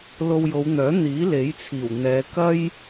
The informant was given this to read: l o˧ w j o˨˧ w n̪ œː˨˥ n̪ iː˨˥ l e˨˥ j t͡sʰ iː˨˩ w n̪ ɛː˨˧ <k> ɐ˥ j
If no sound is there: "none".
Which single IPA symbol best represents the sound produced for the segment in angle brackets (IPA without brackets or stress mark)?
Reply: k